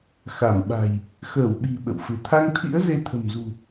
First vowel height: low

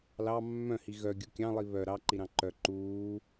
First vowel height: low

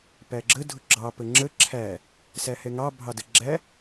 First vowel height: low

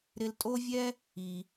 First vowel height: high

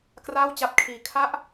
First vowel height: low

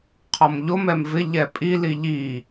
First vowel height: mid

